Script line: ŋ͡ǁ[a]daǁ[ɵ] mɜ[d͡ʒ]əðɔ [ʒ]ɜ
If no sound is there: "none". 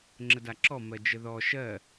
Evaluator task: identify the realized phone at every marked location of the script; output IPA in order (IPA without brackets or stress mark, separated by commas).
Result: ə, ɔ, d͡ʒ, ʃ